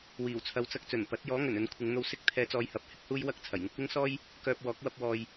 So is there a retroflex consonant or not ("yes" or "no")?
no